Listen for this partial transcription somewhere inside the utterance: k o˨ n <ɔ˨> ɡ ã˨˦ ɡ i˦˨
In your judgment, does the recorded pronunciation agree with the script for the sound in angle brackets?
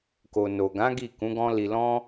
no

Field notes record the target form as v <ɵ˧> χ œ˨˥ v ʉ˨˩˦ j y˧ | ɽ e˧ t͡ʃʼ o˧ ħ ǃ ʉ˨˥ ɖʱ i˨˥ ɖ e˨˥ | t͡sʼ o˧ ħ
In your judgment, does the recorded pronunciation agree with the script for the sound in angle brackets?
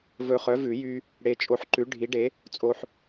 yes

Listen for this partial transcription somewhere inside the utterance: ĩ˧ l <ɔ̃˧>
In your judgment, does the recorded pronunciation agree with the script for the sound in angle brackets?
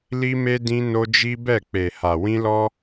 no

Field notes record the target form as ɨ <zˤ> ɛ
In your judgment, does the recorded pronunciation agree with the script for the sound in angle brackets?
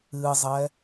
yes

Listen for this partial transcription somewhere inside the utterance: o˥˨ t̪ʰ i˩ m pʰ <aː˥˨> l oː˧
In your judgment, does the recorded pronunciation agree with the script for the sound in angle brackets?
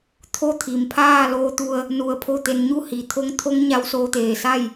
yes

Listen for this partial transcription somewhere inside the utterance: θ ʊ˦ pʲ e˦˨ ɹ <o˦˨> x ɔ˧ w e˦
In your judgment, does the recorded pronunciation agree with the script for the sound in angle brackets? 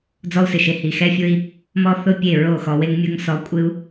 yes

